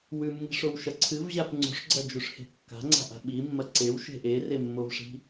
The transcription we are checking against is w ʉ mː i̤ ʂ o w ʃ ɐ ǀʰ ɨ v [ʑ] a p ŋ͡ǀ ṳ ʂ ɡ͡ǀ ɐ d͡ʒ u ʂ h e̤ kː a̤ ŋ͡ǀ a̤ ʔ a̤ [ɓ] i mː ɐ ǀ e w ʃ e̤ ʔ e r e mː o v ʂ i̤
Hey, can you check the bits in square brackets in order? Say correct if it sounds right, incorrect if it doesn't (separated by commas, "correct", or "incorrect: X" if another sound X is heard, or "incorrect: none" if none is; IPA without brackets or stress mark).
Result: correct, correct